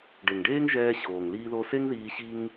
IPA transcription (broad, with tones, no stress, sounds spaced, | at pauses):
ɖ e˩ ŋ ɖ eː˥ ŋ ʒ ɛː˧ ɕ oː˩ ŋ l iː˧ ð o˧ s e˥ ŋ ð iː˧ ɕ i˥ ŋ